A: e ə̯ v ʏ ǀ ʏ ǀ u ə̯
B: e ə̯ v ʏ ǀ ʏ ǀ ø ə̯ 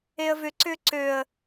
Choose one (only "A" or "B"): B